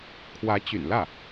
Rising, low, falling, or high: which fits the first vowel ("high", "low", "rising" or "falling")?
rising